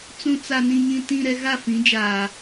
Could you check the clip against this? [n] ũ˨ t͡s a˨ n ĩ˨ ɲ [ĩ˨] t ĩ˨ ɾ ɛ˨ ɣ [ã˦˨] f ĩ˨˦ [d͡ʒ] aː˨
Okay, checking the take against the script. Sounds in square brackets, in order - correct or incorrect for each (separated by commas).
incorrect, correct, incorrect, correct